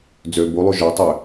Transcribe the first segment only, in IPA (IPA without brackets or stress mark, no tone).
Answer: d͡z